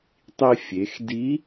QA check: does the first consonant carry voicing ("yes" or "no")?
no